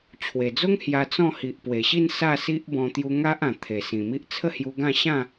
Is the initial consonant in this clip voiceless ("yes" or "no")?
yes